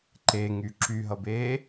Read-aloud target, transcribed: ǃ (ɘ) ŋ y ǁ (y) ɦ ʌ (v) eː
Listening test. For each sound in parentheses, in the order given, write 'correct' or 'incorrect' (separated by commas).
incorrect, correct, incorrect